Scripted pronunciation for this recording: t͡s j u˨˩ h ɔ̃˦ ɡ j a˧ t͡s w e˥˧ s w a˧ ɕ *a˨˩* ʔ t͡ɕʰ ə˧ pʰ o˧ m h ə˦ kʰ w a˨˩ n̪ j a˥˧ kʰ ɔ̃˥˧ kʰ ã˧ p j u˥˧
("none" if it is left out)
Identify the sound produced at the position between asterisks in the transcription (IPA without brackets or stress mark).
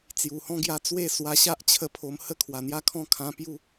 a˦